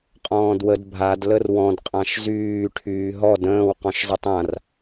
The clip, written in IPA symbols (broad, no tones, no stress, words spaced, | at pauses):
qʼɔ̃ːdwəd bʱad lərwɔ̃d qʼãʃzyː ʈʰyːɦɔd ə̃ːw qɔ̃ʃzˤɪtˤãr